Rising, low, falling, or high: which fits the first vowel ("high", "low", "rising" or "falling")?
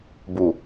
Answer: low